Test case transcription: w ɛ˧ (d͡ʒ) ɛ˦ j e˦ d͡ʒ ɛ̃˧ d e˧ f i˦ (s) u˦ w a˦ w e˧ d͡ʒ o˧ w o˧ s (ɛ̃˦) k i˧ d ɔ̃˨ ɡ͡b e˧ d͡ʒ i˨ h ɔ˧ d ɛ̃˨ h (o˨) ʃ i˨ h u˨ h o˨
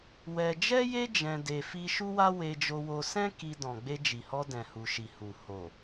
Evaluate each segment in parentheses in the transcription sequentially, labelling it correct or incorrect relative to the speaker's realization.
correct, incorrect, correct, incorrect

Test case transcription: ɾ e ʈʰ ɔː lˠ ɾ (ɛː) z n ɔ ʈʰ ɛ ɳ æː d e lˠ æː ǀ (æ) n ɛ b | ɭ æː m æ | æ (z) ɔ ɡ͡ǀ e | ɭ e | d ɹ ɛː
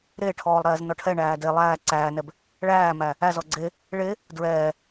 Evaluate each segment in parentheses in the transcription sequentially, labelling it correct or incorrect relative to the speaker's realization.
correct, incorrect, correct

